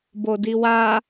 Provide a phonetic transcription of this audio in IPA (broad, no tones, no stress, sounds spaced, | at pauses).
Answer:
b o d i w a